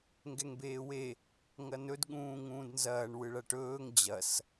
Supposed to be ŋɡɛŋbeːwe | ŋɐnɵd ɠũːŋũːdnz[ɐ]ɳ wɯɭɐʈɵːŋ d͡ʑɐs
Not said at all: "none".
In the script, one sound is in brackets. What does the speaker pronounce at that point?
ɐː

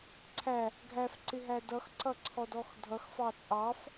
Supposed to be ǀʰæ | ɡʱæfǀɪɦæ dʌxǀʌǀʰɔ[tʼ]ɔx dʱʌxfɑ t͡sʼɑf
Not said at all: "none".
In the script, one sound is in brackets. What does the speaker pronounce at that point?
d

